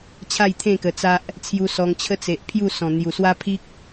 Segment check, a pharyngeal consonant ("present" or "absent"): absent